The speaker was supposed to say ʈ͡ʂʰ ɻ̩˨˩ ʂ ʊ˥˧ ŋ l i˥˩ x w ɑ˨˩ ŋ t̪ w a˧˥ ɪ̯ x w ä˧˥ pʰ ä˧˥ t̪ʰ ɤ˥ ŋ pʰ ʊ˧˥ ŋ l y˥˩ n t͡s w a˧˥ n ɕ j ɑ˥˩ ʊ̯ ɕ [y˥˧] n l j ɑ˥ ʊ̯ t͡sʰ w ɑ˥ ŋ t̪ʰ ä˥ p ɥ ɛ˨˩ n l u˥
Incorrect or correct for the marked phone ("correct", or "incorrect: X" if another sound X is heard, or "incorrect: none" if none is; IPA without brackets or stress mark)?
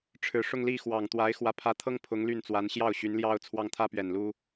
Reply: incorrect: y˧˥